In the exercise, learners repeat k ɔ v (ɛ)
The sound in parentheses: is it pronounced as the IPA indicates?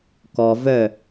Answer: no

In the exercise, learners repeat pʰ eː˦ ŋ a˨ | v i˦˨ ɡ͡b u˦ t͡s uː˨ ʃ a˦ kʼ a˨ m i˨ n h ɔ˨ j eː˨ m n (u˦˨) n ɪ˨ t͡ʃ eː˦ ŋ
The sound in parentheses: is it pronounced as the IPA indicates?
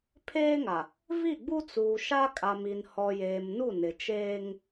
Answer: yes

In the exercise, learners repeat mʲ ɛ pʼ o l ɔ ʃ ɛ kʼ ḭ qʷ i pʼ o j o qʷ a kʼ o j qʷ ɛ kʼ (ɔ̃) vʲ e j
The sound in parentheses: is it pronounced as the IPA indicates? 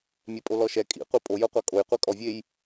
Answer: no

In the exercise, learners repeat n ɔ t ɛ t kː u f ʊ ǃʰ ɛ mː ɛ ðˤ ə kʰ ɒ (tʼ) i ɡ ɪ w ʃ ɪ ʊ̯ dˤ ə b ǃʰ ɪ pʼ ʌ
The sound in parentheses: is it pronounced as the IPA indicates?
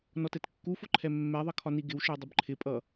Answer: no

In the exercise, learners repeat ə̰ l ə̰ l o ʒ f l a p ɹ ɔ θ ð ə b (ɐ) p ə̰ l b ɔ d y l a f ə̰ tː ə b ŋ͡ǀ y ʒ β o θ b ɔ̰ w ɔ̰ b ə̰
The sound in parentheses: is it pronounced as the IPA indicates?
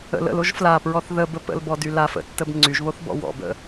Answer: no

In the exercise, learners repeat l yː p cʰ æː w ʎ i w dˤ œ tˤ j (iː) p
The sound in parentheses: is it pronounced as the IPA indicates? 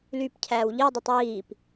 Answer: yes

